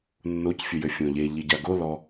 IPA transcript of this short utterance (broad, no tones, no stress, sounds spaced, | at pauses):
nː o c fʲ ɘ j ɘ fʲ õ ʎ e ʎ i ɟ a ɡ o l ɔ